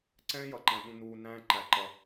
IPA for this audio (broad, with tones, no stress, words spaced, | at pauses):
ǀɛ̃ː˦jʌ˨ǃæ̃˨ ɗũ˨ nuː˨ næ̃ː˦ ǃæ˨ ǃʌ˨